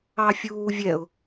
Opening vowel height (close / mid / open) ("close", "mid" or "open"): open